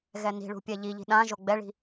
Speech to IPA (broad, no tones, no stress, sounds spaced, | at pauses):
ɣ ɛ n i̤ ɭ ṳ pʲ ɛ ʎ i ʎ i̤ ɗ ã ʒ o ɡ͡b ɛ ɭ i̤